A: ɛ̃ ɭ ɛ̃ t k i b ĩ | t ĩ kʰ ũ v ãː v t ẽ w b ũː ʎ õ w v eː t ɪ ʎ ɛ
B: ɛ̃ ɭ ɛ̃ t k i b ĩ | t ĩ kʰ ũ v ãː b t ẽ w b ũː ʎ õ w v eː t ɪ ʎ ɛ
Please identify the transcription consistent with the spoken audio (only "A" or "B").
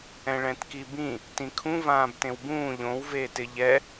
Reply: B